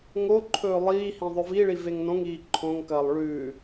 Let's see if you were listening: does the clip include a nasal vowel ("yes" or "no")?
yes